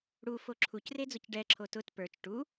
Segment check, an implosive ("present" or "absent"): absent